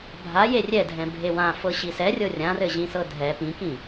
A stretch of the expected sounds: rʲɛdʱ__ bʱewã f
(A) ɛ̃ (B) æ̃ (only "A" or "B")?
A